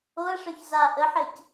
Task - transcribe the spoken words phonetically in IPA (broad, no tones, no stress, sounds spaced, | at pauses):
o ɐ̯ ʂ œ ç z a ʔ ə ħ e c